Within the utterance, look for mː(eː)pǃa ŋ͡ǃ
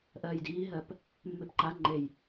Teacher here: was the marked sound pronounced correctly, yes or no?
no